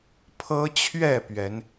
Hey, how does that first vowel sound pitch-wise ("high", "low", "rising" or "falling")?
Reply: high